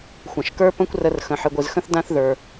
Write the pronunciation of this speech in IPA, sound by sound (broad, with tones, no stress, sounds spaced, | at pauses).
xʷ ɐ̃˩ ʃ k ə˞˥ p ə̃˥ kʷ r ə˧ r x ə̃˩ ħ ɨ˩ ɡʷ ɨ˩ z x ə̃˥ θ d ã˥ θ ð ə˞˩